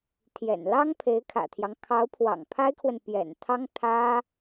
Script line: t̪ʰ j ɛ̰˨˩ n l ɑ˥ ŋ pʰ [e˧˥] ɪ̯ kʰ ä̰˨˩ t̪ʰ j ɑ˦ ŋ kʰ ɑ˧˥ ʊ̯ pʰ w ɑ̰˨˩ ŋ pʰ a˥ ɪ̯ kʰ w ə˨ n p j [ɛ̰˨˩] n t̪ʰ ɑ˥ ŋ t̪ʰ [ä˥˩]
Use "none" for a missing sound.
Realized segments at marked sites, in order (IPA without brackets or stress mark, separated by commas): e˧˥, ɛ̰˨˩, ä˥